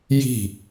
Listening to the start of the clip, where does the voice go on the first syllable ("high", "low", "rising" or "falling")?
falling